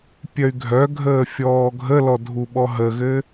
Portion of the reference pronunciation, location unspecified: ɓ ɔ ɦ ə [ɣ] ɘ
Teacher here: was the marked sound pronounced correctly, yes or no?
yes